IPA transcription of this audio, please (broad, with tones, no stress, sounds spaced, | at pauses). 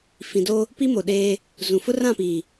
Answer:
f ĩ˨ d o˦ | p i˦ m o˨ ɗ eː˦ | z ũ˨ f ʊ˦ r ã˦˨ p iː˨